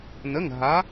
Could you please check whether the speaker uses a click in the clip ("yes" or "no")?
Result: no